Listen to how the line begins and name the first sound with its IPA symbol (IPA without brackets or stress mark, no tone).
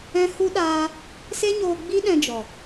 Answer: ɛ̃